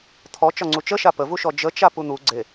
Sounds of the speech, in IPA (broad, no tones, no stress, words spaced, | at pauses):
t̪ʰɔ t͡ʃɒŋ͡ǀut͡ʃə ʃapəvuʃɔ d͡ʒət͡ʃa pun̪u ɡ͡ǀe